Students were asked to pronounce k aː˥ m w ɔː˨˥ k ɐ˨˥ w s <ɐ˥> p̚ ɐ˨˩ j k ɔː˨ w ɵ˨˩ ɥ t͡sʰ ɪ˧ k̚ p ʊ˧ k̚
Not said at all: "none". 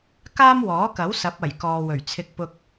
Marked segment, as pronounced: ɐ˨˥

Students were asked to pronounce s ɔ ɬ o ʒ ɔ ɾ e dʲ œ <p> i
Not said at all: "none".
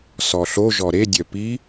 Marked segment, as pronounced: p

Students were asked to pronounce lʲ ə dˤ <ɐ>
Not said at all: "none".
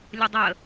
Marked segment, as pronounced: ə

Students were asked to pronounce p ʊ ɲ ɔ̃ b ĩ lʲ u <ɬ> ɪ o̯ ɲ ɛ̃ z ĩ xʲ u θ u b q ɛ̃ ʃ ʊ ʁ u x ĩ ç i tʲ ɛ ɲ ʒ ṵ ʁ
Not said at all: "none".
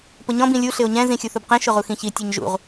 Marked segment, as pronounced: ɬ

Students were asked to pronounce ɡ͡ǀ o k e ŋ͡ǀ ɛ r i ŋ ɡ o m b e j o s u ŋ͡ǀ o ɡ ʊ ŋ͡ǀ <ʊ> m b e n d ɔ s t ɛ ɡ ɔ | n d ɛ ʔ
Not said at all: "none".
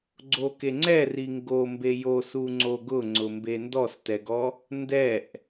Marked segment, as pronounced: ʊ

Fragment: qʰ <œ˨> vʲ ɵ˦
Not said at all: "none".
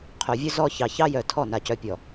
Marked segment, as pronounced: œ˨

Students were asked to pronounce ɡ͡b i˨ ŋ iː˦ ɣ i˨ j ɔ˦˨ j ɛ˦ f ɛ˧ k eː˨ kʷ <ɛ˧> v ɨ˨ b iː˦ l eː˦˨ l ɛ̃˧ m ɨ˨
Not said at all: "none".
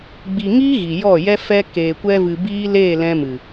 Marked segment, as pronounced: ɛ˧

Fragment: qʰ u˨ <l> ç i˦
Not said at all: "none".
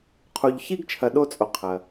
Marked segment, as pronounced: ʎ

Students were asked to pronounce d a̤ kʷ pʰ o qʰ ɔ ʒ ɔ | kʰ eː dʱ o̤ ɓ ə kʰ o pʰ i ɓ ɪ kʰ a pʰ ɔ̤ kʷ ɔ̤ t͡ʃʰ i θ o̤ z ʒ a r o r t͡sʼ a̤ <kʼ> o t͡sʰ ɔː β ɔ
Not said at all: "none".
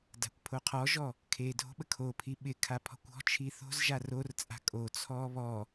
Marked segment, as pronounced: kʼ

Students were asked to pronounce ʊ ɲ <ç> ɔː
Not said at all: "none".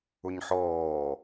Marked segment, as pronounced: ħ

